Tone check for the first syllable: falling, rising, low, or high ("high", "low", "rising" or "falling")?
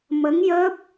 rising